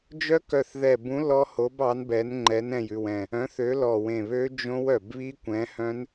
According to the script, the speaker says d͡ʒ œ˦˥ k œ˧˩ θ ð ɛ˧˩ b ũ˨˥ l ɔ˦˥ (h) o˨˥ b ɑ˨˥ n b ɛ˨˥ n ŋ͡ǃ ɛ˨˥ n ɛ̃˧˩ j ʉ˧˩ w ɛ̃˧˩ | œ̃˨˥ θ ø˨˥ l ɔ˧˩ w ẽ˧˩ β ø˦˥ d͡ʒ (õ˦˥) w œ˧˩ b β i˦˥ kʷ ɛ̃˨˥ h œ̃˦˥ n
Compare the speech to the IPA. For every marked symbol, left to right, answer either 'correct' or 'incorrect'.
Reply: correct, correct

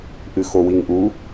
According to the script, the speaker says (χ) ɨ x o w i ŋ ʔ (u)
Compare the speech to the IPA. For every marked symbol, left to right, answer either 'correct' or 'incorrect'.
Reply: incorrect, correct

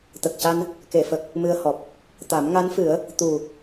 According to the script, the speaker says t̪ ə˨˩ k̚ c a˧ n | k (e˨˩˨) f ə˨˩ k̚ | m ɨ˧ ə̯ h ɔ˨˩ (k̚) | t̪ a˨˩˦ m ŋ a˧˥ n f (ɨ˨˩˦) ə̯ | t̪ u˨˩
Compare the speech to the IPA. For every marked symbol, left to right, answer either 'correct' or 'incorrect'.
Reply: correct, incorrect, correct

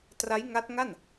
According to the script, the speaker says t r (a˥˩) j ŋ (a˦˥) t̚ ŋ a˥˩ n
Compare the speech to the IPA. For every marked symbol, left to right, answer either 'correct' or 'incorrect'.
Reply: incorrect, correct

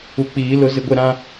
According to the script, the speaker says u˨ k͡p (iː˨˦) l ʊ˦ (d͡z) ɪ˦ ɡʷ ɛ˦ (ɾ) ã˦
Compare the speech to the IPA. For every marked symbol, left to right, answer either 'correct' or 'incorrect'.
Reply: correct, incorrect, correct

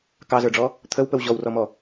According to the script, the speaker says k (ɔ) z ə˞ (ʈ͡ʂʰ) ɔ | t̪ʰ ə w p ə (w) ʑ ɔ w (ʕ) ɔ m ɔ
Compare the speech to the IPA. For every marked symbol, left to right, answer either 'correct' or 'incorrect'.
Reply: incorrect, incorrect, correct, incorrect

